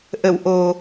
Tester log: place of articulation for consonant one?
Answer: glottal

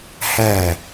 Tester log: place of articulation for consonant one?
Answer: glottal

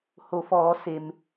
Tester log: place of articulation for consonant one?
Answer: glottal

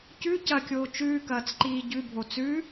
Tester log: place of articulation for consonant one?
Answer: palatal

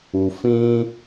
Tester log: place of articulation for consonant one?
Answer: labial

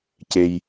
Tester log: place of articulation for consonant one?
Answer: palatal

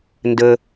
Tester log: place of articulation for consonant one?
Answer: alveolar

